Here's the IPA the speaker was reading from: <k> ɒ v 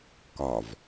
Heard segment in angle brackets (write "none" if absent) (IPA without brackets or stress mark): k